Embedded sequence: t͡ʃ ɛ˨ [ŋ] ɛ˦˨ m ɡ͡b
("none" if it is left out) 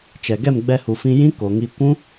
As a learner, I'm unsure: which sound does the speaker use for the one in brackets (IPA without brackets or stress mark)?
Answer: ɡ